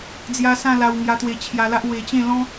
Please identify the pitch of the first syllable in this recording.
high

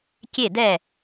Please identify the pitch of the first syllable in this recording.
falling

